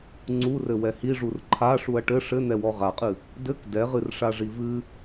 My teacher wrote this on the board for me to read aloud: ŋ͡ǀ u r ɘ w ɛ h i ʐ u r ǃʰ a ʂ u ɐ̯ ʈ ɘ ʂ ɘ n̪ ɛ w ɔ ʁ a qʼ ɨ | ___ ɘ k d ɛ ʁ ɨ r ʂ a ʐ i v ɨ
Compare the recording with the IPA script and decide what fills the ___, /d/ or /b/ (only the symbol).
d